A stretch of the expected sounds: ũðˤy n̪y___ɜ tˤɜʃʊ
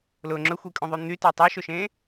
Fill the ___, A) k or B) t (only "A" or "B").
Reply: B